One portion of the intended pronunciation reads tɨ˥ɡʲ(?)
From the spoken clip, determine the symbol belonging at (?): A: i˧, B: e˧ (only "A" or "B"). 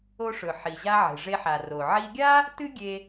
B